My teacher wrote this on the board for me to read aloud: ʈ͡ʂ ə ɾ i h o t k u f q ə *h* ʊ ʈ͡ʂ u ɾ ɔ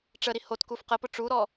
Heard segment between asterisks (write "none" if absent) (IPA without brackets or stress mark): p